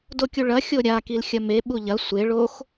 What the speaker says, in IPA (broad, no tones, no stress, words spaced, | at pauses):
dokʲuɭɐxʲo ɾʲakil xʲɐmeɓu ʎɐ sʷe ɭox